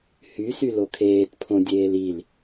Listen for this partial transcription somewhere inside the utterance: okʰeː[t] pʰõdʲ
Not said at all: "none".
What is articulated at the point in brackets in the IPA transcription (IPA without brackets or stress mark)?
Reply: t